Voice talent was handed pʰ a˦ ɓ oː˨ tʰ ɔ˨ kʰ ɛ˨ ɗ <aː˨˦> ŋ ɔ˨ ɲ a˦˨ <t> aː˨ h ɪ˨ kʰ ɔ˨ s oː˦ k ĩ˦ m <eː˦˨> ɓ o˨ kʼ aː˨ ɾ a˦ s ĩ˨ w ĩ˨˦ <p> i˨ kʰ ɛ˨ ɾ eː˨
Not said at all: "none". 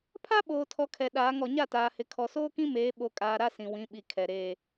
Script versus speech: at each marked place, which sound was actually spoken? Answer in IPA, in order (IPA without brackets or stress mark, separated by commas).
aː˨˦, t, eː˨˦, ɓ